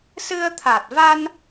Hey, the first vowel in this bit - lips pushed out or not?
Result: no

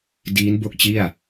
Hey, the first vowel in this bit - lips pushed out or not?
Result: no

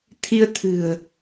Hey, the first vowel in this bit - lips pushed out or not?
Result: no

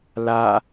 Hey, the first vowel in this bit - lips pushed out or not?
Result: no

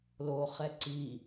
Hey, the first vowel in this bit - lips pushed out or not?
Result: yes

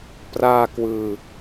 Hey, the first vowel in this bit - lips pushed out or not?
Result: no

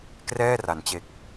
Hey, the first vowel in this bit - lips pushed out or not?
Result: no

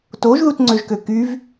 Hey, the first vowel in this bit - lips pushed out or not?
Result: yes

